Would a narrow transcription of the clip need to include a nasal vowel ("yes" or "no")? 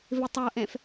yes